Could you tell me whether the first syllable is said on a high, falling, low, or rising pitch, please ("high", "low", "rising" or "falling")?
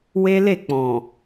high